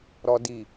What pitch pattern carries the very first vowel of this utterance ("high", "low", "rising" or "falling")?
low